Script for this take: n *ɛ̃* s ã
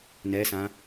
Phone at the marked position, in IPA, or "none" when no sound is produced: ɛ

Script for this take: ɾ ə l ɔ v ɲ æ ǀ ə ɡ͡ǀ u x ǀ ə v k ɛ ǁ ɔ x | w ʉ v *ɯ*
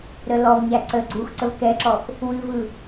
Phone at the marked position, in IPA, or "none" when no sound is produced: ɯ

